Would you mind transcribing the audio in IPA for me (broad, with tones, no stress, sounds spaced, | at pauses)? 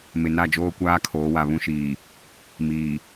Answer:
m ɪ˨ n a˦˨ d͡ʒ oː˦ kʷ aː˦ kʰ oː˨˦ w a˨ β ũ˦ ʃ iː˨ | m iː˨